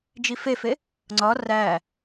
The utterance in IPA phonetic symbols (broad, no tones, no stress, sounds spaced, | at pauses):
d͡ʒ i f e f e | ŋ͡ǀ ɒ r æ